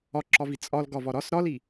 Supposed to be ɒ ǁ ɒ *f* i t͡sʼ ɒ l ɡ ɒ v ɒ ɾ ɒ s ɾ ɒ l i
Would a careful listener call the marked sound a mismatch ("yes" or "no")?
yes